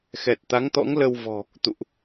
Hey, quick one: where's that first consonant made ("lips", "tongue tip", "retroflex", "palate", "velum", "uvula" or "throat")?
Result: velum